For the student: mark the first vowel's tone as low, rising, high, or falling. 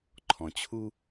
low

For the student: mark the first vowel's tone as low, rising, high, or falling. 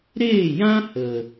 falling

